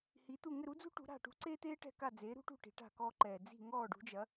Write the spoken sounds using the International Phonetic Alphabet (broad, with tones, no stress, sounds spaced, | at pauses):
h i˩˥ t̪ u˥˩ ŋ ɘ˥˩ ɾ u˥ d͡z ṳ˥ ʈ ṳ˩˥ ɾ a̤˥˩ ʈ ṳ˥ ǀ eː˥ t̪ eː˥ ʈ ɛ̤˥˩ k a˥˩ d͡z eː˩˥ ɾ ṳ˥ ʈ ṳ˥˩ ʈ i̤˩˥ ʈ a̤˥˩ k ɔː˥ ǃ ɛ˨˩ d͡z i̤˥˩ ŋ ɔː˥˩ ɖ ṳ˩˥ d͡ʒ ɐ˩˥